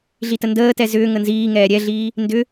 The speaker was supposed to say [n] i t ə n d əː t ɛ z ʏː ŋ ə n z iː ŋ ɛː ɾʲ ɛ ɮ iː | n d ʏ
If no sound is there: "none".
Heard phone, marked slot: ɮ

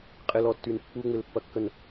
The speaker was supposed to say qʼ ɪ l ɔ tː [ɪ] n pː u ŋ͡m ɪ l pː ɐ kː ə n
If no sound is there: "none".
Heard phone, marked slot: y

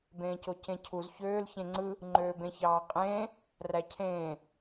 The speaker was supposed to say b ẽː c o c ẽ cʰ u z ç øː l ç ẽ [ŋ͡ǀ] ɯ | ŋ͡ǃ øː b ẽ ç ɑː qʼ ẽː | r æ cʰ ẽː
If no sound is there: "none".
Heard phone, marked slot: ŋ͡ǀ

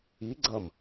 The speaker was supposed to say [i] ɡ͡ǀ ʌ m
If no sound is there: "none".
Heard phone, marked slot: i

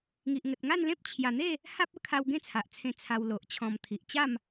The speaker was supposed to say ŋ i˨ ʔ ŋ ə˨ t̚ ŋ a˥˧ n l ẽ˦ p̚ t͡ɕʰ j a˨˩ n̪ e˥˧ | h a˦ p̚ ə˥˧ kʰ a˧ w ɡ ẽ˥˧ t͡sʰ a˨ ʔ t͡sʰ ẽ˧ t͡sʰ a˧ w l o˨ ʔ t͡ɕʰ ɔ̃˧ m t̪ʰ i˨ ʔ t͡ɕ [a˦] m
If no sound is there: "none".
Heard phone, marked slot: a˥˧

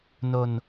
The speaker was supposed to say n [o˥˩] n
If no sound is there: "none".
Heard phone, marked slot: o˧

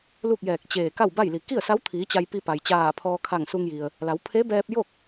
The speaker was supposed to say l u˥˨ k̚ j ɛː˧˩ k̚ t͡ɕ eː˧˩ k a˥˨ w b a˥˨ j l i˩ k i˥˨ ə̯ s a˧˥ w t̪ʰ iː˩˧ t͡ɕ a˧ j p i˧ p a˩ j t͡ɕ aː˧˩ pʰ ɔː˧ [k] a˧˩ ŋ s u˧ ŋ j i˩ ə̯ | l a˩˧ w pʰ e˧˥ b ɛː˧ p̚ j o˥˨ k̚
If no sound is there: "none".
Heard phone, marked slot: kʰ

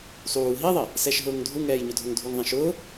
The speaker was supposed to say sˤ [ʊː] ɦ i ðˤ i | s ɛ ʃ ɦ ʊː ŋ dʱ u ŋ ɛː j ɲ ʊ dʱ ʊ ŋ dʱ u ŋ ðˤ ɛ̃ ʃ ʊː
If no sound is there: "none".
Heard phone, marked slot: uː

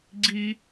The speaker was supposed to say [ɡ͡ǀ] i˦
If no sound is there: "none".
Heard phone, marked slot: ɡ͡ǀ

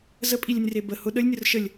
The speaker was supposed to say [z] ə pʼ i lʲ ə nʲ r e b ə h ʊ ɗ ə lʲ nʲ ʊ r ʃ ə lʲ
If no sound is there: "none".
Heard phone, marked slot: z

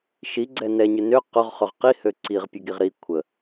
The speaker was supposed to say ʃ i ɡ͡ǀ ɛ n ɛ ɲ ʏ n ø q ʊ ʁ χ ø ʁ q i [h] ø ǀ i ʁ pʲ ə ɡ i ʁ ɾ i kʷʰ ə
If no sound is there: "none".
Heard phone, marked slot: h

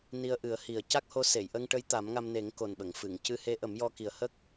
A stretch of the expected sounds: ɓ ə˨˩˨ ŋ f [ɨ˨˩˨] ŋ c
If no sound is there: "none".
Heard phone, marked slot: ɨ˨˩˨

